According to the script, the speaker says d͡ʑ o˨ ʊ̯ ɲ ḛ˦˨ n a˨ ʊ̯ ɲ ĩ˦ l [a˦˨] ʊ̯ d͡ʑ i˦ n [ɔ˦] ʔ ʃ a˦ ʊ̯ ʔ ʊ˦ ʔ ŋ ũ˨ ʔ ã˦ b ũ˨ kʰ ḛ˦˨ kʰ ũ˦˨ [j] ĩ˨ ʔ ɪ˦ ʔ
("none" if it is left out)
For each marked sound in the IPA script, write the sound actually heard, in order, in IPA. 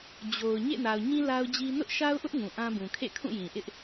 a˦, ʊ˦, j

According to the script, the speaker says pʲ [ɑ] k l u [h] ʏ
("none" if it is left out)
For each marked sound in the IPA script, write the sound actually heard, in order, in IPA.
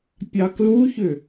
ɑ, ç

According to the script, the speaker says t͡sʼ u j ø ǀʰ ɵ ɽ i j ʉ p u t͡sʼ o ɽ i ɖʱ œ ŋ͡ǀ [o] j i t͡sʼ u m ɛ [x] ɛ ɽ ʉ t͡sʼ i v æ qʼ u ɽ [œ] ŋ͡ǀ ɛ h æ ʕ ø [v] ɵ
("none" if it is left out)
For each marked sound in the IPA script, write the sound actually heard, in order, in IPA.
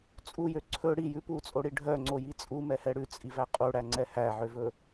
o, h, æ, v

